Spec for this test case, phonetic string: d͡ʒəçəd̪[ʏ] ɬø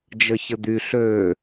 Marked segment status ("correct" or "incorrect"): incorrect